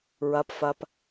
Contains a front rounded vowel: no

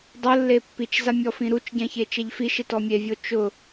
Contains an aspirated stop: no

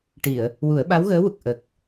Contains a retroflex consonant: yes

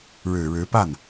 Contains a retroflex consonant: yes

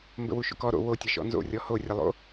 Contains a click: no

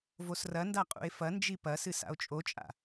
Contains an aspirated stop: no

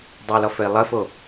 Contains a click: no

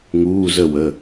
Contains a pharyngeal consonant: no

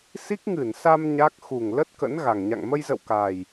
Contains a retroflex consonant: no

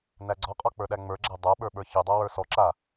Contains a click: yes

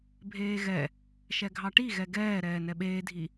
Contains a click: no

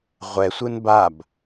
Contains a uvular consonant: yes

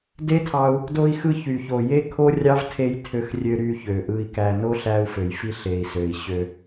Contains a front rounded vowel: yes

